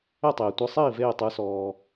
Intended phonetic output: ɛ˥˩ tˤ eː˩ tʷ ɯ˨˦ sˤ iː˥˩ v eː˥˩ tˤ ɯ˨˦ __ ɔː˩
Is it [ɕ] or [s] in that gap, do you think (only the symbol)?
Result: s